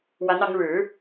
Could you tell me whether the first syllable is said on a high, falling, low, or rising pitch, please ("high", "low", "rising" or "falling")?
rising